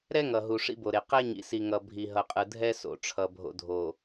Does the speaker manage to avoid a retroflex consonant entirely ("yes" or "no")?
no